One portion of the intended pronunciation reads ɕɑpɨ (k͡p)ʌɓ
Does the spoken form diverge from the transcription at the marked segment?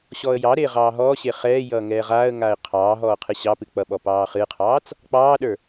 no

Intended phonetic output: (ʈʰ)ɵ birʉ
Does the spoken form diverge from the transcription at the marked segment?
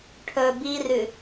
no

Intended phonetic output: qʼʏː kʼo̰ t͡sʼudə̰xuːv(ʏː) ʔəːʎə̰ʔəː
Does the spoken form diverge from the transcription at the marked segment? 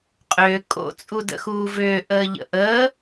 no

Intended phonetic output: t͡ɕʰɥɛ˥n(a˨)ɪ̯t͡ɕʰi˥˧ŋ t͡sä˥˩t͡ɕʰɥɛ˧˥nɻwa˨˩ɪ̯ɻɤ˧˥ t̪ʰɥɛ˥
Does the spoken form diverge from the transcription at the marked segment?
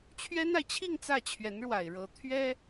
no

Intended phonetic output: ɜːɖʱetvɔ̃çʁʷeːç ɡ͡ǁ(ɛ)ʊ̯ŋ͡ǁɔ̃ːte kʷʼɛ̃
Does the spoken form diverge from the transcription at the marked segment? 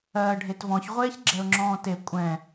no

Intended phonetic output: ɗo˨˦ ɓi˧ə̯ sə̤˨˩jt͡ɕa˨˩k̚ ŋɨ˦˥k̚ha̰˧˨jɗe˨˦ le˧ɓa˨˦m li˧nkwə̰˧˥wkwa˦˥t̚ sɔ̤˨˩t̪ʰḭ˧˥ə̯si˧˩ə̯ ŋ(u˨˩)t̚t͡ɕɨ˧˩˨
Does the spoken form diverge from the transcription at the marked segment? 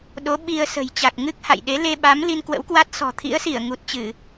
no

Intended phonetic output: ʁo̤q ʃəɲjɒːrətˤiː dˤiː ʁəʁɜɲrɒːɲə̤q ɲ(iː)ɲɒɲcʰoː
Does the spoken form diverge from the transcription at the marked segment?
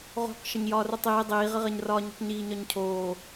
no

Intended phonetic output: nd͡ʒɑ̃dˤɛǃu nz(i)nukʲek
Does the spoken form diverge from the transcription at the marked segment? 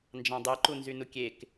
yes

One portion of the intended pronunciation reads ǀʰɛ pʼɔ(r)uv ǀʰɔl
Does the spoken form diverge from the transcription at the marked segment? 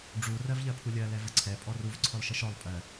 no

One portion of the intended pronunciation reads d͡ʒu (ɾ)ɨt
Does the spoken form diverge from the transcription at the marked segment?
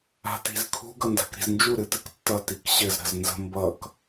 no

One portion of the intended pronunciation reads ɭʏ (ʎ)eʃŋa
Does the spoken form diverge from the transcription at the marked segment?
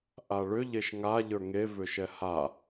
no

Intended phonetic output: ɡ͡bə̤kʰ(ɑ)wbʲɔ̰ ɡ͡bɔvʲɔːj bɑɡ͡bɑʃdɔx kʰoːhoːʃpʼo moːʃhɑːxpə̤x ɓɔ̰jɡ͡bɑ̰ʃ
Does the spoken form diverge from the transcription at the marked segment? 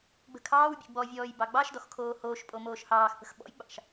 yes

